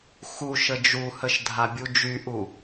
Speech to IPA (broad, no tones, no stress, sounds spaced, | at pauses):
x u ʃ ə d͡ʒ u h ə ʃ dʱ a bʲ u d͡ʒ y ʔ u